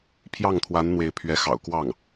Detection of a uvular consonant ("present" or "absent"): absent